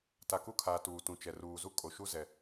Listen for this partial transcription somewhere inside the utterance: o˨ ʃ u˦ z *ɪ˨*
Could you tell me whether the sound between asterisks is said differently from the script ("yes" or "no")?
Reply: yes